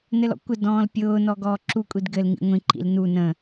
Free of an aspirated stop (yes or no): yes